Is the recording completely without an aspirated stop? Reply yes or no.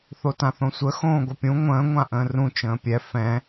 yes